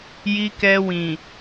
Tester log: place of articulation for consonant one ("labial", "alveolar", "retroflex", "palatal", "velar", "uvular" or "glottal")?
palatal